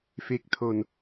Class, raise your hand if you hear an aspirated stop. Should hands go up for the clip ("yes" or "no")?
yes